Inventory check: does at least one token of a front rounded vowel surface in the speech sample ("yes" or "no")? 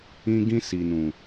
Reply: no